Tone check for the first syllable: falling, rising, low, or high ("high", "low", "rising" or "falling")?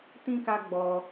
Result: high